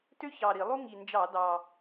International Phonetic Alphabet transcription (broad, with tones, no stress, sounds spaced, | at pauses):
t ø˥ ç ɑ˨˩ ɾ i˧˩˧ lˠ u˥ ŋ i˨˩ n d͡ʒ ɑ˧˩˧ d ɑ˨˩